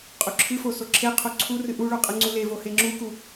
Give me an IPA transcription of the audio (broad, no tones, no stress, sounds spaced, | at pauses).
qʼ u ǁʰ ɨ f o s o ǁʰ e qʰ o ǀʰ u r ɨ ʔ u ɭ u qʼ ɨ ŋ͡ǀ u l e v o h e ŋ͡ǁ u k u